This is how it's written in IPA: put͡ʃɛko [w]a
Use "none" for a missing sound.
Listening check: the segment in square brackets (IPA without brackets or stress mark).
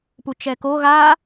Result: ɣ